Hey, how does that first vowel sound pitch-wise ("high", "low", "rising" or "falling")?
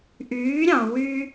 rising